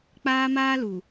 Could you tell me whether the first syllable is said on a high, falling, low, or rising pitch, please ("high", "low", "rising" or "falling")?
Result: high